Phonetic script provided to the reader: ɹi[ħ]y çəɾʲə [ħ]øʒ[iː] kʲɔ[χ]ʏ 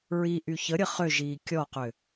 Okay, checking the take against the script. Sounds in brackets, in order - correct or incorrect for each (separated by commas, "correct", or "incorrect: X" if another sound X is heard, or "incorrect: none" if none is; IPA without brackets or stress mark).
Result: incorrect: ʔ, incorrect: χ, correct, incorrect: q